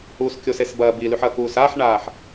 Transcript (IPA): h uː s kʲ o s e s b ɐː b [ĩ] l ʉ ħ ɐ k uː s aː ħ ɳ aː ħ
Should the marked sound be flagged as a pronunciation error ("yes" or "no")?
yes